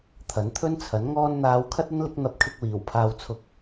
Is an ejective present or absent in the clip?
absent